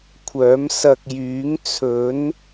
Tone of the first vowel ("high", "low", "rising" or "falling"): rising